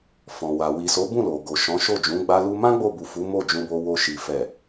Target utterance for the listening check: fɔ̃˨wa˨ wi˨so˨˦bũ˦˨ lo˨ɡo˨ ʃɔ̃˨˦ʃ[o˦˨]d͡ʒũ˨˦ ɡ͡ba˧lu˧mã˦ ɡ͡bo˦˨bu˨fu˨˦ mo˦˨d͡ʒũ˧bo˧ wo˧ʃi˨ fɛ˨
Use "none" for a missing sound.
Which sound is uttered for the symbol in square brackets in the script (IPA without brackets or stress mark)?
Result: o˦˨